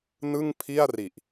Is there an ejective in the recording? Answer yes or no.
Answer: no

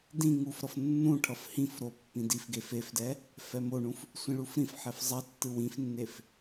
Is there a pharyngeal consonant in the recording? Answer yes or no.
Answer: yes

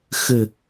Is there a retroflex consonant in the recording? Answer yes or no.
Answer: no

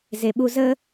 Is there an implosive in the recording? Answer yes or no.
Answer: yes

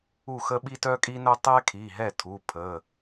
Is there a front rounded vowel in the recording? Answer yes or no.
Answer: yes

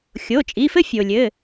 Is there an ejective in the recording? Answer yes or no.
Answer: yes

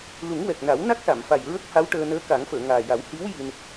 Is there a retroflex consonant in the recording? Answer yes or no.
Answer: yes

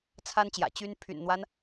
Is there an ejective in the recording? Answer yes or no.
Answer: no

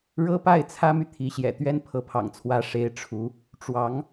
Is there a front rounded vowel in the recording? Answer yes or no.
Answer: yes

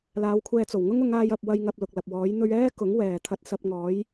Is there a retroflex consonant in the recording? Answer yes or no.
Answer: no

